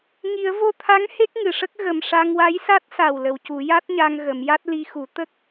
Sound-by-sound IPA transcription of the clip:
ŋ i˨˩˦ ə̯ v o˧ t̪ʰ a˧˥ ŋ h e˦˥ k̚ ŋ ɨ˨˩˨ ʂ ə˦˥ k̚ ɣ ə˨˩ m ʂ a˧ ŋ w a˧˥ j s a˦˥ t̚ s a˨˩ w l ə˨˩˨ w c u˨˩˦ j a˦˥ t̚ ɲ a˧ ŋ ɣ ə˨˩˦ m j a˦˥ t̚ l i˧ x u˨˩˦ t̪ ə˦˥ k̚

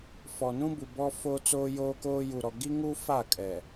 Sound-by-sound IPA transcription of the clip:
f ɔ˨ n ũ˦ b u˨ b ɔ˦ f o˦ t͡s oː˦ j oː˦ k oː˦ j u˨ ɾ ɔ˨ ɡ i˦ ŋ u˦ f a˦˨ kʼ ɛ˨

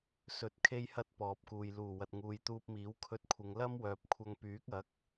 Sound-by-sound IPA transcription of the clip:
s ɵ˨ t̚ kʰ e˧ j h ɐ˧ t̚ p ɔː˨ p̚ k uː˨ j l uː˨˩ w ɐ˨ t̚ ŋ uː˨ j t̪ uː˧ p̚ m iː˨˥ w kʰ ɵ˧ t̚ kʷʰ ɪ˨˧ ŋ l ɐ˥ m w œː˨ p̚ kʷʰ ɐ˧ ŋ p yː˨˥ k̚ ɐ˨˥ k̚

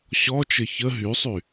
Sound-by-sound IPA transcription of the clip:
ɕ ɔ t͡ʃ ɘ ç ə ɦ y sˤ y

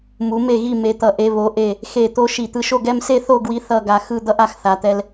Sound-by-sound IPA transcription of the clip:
m u˩˧ m e˧˩ ɣ i˧˩ m e˩˧ t̪ ʌ˩˧ ʔ e˩˧ β o˩˧ ʔ e˧˩ | x e˧˩ t̪ o˧ ʃ i˧˩ t̪ ɯ˧ ʃ o˥˧ ɡ ɛ˥˧ m s e˥˧ θ o˥˧ ɡ w i˧ θ ʌ˥˧ ɡ a˧ x ɯ˥˧ d̪ ʌ˥ ʔ a˥˧ x θ a˩˧ t̪ ɛ˧ l

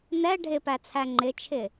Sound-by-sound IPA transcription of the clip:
n ɛ ɖʱ ɪ p æ t͡sʰ æ ŋ͡ǃ ɪ t͡ʃʰ ɪ

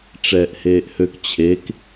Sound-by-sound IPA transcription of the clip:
ʈ͡ʂ ɛː ʔ h eː ʔ h ø k t͡ɕʰ e k

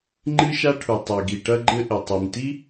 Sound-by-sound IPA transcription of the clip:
ŋ͡ǃ ɨ˥ ʃ a˥ ʈʰ u˩ tˤ e˩ ɡ i˩ ʈ ɐ˥ ɡ͡ǃ ɘ˥ ʔ ɘ˩ tˤ i˩ m t i˥

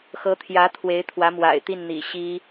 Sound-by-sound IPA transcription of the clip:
x ɤ˧˥ t̪ʰ j ä˧˥ t̪ʰ w e˧˥ ɪ̯ t̪ʰ w ä˧˥ m w a̰˨˩ ɪ̯ t̪ i˥˩ n n̪ ḭ˨˩ ɕ i˥

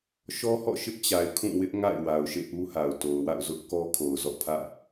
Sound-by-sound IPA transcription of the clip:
ʃ ɔ˦ h ɔ̰˦˨ ʃ ɪ˦ ʔ t͡ɕ a˨ ɪ̯ kʰ ũ˦˨ w ɪ˦ ʔ ŋ a̰˦˨ ɪ̯ w a˨ ʊ̯ ʃ ḛ˦˨ ʔ u˦ h a˨ ʊ̯ t o˨ ʊ̯ w a̰˦˨ ʊ̯ z ʊ˦ ʔ k ɔ˦ kʰ o˨ ʊ̯ z ɔ̰˦˨ pʰ ä̰˦˨

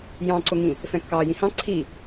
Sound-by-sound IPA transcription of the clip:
j ɑ̃ ǀ ʊ ŋ ĩ | f ɛ̃ kː ɑː j ĩ h ɑ̃ ǀʰ i

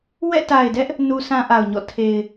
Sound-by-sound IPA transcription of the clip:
w ɛ̰˦˨ t a˨ ɪ̯ d ɛ˦ ʔ | n u˦ s ã˦ ʔ a˨ ʊ̯ ɲ ɔ̰˦˨ tʰ e˨ ɪ̯

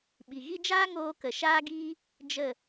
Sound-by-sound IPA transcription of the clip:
ɓ i˨ ɣ i˦ d͡ʒ aː˦ ŋ oː˧ k ə˨ ʃ aː˦ ɡ iː˦ | d͡ʒ ə˦˨

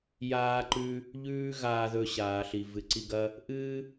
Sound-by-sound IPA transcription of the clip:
j aː˧ ǃ ʉ˧ | ʎ ʉː˦ ɣ aː˧ ð ɵ˧ ɕ aː˨ ɬ i˨ v ɨ˨ ǀ i˧ ɡ ɐ˦ | ʔ ɨː˦

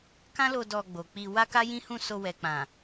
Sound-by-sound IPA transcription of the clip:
k ã˦ l o˧ d ɔ˧ ɡ͡b o˨ k͡p i˧ w a˦ k a˦ j ĩ˦ h ũ˦˨ s o˧ w ɛ˨ k͡p ã˨

